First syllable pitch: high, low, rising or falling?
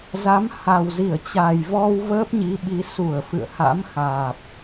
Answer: rising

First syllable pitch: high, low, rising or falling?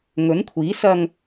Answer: rising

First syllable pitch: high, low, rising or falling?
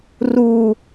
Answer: low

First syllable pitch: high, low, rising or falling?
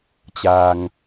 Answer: low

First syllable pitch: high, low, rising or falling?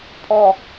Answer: high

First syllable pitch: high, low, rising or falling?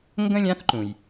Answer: high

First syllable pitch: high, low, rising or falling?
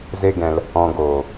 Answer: high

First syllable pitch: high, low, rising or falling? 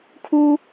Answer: high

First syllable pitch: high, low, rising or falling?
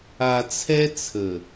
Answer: low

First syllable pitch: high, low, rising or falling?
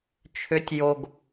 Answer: rising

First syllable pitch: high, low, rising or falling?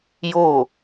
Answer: falling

